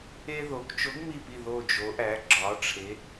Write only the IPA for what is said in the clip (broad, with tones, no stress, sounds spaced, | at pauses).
e˥ ð o˩˧ k t͡ʃ o˨˥ ɡ m i˧˩ p i˧˩ ð o˧˩ d͡ʒ o˩˧ ʔ æ˩˧ ɡ͡ǁ ɒ˩˧ ʈ͡ʂʰ e˩˧